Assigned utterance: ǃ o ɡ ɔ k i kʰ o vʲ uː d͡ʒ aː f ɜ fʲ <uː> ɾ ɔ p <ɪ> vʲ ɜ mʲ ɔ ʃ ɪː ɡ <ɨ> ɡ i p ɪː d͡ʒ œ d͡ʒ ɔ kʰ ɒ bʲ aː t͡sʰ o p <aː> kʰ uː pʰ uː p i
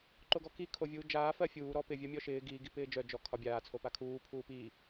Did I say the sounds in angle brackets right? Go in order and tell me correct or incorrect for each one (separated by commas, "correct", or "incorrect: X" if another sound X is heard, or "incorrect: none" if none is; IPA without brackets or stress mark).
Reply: correct, correct, incorrect: i, incorrect: a